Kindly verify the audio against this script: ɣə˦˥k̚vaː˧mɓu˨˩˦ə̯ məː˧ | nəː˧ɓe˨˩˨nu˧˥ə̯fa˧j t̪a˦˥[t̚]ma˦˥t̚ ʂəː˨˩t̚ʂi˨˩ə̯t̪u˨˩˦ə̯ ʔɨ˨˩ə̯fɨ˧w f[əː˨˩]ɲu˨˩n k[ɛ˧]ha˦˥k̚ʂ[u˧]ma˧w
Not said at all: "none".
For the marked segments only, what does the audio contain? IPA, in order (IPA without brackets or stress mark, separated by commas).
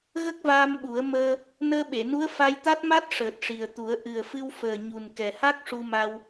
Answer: t̚, əː˨˩, ɛ˨˩, u˧